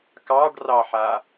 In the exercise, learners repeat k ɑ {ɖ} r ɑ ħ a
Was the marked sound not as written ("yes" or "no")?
no